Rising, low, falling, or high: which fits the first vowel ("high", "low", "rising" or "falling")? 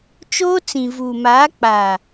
high